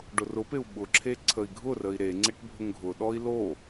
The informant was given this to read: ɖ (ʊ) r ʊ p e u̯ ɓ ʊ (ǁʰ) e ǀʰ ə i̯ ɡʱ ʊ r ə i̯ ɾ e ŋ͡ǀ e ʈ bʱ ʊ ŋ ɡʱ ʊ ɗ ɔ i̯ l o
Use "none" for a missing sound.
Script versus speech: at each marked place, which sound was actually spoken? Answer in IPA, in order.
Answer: ʊ, ǁʰ

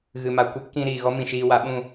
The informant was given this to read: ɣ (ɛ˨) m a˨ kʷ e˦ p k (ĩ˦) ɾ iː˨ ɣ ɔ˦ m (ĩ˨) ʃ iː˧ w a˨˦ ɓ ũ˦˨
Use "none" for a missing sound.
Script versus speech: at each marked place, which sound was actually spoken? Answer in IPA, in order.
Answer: ɨ˨, ĩ˧, ĩ˨

